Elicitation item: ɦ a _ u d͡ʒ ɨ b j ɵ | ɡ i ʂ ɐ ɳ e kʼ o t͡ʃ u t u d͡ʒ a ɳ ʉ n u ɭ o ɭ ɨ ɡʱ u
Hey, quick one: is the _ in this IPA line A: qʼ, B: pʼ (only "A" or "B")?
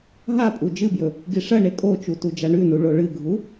B